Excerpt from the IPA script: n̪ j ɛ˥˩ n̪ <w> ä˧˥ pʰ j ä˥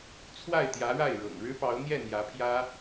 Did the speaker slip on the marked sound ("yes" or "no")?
yes